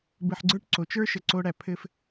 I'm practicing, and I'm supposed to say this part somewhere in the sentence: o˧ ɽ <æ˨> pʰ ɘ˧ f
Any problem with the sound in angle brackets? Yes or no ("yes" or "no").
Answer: no